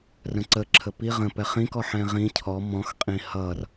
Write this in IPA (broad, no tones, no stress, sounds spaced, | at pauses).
r ə̃ ǀ ə ǁʰ ə p i ʁ ə̃ p ɛ χ ĩ k ɔ ħ ɛ̃ ʁ ĩ cʰ ɔ m ɔ̃ x qʼ ĩ h ʌ r